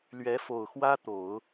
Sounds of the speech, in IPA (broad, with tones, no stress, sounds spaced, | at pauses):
l ɥ ɛ˧˥ f o˨˩ ʊ̯ x w ä˥ t̪ o˨˩˦ ʊ̯